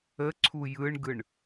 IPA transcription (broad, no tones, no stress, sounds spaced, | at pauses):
ə ǀʰ u j ɯ ɳ ɡ ɯ ɳ